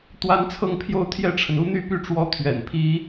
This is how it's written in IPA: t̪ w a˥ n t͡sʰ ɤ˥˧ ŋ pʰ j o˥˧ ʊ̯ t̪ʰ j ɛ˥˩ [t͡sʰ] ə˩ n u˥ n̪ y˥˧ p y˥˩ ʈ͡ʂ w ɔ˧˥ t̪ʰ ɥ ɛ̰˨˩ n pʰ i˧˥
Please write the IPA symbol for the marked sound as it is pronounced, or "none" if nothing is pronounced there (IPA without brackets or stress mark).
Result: ʈ͡ʂʰ